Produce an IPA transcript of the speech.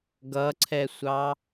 ɡʌǀʰɛsʷɑ

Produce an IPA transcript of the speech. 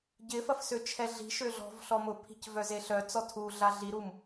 ɟɪfɐf søt͡ʃʰɛɮi̤ʃø ɮɔ̤vɬɔmʊpʰi̤c vœzeɬœt͡sɔ tʰuɮa ɮiɾum

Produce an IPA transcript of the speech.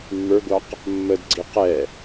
mːə˞ɡʷɑq | mːədɡ͡ǀi qɛ

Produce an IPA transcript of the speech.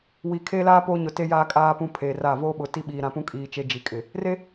wi˨kʰe˦ laː˦ poː˦ɲʊ˨te˦ jaː˦kʼaː˦ pũ˦pʰeː˨ra˦˨ voː˦ɓʊ˨ti˦ ɓiː˨ɾã˨pũ˦ kʼiː˦t͡ʃe˦ d͡ʒi˨kʼɪ˨ | re˦

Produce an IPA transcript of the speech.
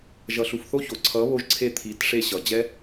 ʒʌ˨ɬu˨fθo˦ço˨ ǀʰʌ˨˦βo˧ʒǀʰe˧ t̪ʰi˨˦tʂe˧ɕʌ˨ d͡ʑɛ˦

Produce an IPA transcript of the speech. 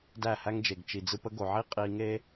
dæ˦˨hæ˦ŋd͡ʒe˨ɡ t͡ʃi˨d͡zɯ˧pə˦ ɡo˨ʕi˦ qʼi˧ŋe˦

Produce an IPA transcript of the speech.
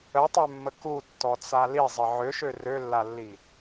ətˤømːə kutːɔt͡sa lizˤə ʕøʃø rølːalːi

